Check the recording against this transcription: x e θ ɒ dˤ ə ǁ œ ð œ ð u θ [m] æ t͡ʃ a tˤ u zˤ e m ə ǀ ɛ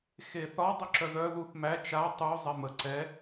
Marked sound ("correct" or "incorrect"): correct